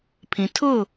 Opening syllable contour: low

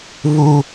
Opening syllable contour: high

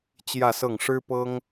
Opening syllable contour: falling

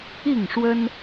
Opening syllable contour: falling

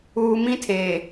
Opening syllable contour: high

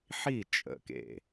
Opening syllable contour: falling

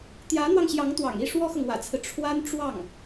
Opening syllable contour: rising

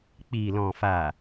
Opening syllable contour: low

